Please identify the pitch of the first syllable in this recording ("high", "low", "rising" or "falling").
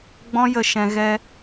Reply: high